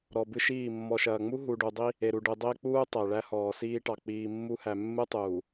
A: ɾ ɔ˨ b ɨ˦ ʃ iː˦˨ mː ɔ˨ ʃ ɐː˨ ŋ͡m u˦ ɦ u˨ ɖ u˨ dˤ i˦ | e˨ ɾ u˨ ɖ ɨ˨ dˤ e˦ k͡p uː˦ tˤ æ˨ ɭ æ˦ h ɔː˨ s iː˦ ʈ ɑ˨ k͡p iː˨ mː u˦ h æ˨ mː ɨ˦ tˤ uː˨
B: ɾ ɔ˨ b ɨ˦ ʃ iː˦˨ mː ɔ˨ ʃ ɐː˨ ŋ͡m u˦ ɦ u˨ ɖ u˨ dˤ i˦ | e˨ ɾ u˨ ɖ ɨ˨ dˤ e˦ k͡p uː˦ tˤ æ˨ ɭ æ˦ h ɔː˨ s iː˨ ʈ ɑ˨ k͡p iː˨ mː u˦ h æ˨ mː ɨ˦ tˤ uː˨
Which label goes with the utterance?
A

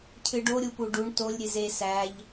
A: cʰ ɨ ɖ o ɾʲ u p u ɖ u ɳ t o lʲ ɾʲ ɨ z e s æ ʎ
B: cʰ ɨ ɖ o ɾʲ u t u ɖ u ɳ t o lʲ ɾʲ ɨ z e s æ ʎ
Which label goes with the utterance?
A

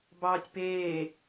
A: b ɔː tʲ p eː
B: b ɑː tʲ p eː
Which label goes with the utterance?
B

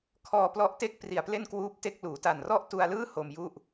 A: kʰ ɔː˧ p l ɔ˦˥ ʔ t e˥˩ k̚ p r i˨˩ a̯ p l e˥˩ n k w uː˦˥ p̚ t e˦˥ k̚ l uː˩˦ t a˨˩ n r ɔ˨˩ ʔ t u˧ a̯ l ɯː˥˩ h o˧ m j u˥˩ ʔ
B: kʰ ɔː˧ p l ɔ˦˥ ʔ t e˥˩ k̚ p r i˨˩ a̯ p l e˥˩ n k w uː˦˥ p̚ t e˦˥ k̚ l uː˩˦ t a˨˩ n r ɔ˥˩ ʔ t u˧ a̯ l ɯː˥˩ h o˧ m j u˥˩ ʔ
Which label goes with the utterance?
B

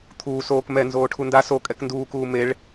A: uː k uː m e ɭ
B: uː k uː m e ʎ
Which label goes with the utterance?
A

